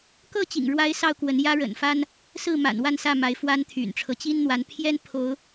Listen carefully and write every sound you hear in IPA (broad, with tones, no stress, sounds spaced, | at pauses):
k ɤ˥˨ t͡ɕ ḭ˨˩ ŋ ɻ w a˦ ɪ̯ s ɑ˥˨ ʊ̯ k w ə˨˦ n j ä˦ ɻ ə̰˨˩ n f a˦ n | s ɹ̩˥˨ m a̰˨˩ n w a˥˨ n s ä˥˨ m a˨˦ ɪ̯ f w a˨˦ n t̪ʰ y̰˨˩ n ʈ͡ʂʰ ɤ˦ t͡ɕ i˦ n n̪ w a˨˦ n pʰ j ɛ˦ n pʰ o˨˦ ʊ̯